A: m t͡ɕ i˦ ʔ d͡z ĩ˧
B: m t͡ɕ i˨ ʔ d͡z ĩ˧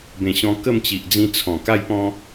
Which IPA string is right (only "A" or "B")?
B